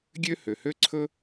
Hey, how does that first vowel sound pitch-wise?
high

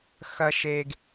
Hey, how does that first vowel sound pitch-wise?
high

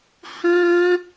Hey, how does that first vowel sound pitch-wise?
high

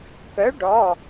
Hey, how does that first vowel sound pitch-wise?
rising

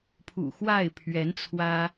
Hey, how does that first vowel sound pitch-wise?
low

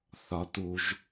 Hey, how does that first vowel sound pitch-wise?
low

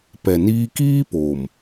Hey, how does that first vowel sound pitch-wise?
low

